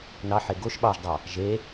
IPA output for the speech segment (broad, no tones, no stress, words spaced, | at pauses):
nɑħe ɡoʃ ɓɑʒdˤɑ | ʒe